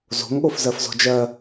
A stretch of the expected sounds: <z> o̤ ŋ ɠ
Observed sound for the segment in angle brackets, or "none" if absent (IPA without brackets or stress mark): z